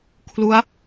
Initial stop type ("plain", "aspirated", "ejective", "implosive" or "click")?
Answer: aspirated